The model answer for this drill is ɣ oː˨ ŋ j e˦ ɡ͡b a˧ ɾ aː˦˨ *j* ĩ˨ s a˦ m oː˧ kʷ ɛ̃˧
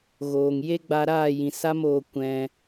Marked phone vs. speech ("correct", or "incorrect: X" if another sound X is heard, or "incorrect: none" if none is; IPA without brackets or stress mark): correct